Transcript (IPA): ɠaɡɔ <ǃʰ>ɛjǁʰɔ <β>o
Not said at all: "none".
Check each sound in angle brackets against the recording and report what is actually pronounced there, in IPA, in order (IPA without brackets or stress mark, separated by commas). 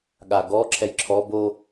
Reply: ǁʰ, b